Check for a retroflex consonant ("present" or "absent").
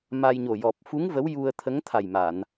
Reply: absent